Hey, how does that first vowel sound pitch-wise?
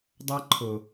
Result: high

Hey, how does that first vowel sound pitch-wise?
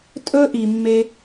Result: high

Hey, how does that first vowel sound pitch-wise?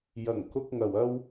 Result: low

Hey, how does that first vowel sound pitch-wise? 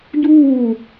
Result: falling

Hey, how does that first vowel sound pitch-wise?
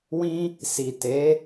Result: high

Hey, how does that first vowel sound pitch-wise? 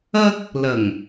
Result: high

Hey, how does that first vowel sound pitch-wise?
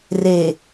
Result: low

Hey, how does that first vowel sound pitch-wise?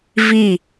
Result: falling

